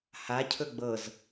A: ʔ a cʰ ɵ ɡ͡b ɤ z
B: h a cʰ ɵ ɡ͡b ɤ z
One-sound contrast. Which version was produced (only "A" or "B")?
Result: B